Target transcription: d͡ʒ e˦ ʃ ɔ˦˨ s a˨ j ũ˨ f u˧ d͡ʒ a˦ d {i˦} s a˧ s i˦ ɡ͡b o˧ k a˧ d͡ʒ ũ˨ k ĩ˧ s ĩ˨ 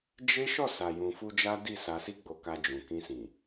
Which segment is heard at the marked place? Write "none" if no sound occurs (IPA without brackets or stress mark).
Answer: i˦˨